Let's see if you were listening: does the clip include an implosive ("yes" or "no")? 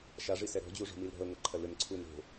no